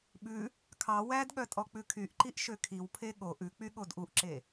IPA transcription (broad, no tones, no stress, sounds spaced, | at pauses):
ɓ ʉ | kʰ ɑ w æ d ɠ œ tʼ ɔ k͡p ʉ kʰ y ʔ ǃ i ʔ ʃ ø kʰ i w pʰ e ɠ o ʔ ʉ k͡p y ɠ o d ʔ u ʔ ǁ e